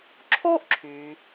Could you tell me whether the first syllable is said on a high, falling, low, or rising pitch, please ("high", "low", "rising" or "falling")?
high